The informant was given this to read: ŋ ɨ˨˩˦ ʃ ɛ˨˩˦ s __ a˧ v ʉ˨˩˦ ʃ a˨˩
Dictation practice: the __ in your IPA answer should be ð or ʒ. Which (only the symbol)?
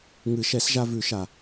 ʒ